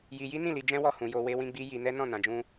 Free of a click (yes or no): yes